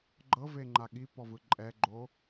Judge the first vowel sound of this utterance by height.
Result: mid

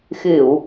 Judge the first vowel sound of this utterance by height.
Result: high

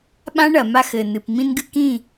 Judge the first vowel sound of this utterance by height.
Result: low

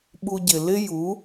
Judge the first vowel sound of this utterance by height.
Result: high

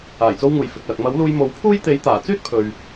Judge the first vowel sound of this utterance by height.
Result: low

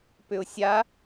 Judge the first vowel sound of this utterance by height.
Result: high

